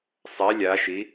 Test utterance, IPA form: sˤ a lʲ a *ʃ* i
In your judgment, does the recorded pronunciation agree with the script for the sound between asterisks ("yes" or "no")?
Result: yes